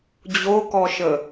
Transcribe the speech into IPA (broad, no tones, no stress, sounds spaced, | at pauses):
d͡ʑ o k ɔ ʃ ə